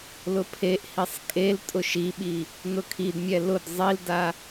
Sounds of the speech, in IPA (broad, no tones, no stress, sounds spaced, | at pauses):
l ʊ pʰ e ʔ h i sˤ kʼ e l tʼ ʊ ʃ i ɓ i | n ʊ kʰ i d mʲ ɛ l ʊ d zˤ i l d a